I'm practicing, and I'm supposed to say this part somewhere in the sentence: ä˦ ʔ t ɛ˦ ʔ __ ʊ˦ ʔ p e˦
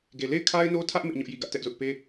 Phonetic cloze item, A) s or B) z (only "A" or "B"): B